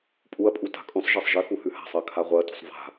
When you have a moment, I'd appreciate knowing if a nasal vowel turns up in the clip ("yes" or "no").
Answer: yes